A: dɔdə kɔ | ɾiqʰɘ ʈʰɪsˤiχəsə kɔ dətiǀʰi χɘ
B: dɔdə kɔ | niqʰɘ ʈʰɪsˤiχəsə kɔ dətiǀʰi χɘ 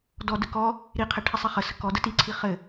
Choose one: A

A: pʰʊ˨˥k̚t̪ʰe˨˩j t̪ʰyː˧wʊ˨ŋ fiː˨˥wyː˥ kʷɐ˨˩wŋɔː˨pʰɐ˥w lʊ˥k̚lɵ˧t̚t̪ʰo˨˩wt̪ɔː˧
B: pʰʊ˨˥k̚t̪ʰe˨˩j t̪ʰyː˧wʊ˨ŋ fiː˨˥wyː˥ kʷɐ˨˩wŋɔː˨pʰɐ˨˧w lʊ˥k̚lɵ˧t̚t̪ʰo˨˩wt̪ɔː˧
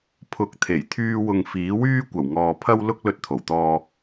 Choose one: A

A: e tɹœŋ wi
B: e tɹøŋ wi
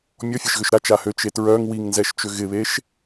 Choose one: A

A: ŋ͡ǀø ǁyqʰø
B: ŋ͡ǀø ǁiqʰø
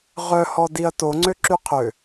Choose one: A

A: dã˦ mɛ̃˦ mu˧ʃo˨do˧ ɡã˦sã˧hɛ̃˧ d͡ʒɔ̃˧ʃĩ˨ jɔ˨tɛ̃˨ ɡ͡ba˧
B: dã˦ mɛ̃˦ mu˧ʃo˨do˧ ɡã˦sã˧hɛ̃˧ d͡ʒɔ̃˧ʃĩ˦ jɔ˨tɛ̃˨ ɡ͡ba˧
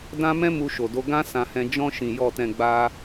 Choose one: A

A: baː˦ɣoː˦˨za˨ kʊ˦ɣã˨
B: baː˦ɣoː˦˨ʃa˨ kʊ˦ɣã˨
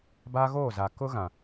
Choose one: A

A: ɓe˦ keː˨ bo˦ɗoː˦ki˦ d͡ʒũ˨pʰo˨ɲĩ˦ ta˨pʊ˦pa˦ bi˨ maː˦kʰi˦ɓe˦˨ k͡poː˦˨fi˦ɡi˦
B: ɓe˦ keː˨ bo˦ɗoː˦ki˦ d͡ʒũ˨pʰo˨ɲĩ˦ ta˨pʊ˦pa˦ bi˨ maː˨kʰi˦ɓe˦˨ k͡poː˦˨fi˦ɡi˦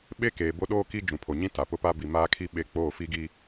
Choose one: A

